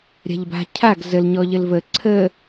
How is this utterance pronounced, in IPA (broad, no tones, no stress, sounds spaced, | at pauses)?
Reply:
ɾʲ a̤ ʎ b a̤ cʰ a ɡ z ə l ɲ ɔ ʎ ə l v ə ǀʰ ə